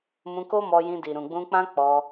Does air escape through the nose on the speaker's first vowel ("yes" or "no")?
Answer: yes